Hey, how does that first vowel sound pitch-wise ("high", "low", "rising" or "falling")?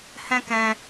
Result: high